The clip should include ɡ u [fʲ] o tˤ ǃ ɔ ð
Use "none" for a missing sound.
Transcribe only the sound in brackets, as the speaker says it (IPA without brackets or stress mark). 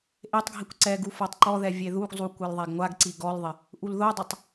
f